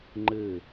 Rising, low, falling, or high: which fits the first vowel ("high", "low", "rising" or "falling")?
falling